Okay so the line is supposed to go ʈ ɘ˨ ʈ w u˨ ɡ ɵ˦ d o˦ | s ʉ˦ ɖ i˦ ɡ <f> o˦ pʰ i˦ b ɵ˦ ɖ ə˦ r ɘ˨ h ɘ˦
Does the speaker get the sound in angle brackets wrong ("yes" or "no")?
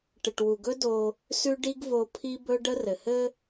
yes